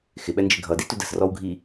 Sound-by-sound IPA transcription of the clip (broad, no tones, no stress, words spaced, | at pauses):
xɪɓɛnd͡ʒɪ ɡʱʌditud ə̤srɔwɡʱi